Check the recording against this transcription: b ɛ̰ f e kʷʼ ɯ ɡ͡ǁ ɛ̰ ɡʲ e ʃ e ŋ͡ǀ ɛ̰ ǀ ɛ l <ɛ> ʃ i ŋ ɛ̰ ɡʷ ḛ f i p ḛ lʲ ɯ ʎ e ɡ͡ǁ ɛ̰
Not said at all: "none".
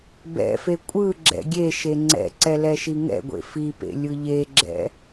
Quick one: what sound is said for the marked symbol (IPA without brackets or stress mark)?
ɛ